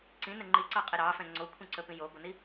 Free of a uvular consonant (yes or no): no